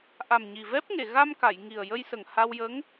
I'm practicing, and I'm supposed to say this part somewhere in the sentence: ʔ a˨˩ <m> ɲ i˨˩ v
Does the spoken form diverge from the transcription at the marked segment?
no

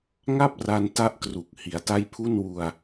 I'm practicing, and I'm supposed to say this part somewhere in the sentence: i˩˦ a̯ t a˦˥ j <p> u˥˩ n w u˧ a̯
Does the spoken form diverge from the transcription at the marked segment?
yes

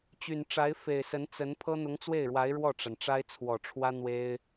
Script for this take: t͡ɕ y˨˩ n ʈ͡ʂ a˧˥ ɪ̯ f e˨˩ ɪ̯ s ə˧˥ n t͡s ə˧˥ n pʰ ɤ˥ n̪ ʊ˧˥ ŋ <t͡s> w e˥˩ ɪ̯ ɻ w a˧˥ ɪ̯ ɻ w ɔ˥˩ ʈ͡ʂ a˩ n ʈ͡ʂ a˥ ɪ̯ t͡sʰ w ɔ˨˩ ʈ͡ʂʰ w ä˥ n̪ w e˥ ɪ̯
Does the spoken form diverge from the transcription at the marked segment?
no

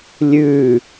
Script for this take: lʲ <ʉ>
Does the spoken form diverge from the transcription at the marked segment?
no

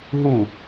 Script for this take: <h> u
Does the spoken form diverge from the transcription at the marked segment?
yes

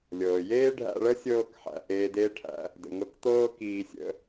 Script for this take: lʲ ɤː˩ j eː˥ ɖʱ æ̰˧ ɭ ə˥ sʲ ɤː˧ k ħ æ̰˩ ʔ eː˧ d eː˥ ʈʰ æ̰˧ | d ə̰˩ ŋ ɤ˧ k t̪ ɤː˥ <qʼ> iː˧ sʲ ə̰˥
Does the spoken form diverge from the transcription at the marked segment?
yes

